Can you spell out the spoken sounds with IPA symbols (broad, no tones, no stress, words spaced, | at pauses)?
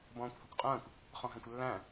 bɔ̃ːkʷhɐkʷqʼɐ̃ːkʷ | χɔ̃ɦɛ̃kʷlːæ̃